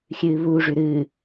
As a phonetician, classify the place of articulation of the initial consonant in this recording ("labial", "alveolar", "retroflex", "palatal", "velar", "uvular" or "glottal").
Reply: velar